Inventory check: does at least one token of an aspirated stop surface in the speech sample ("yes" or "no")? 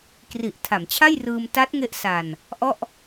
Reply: yes